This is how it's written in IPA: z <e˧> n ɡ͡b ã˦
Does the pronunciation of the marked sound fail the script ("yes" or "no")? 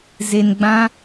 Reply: no